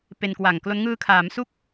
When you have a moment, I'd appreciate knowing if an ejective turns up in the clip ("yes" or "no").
no